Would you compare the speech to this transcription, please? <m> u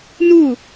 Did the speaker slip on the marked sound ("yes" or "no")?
yes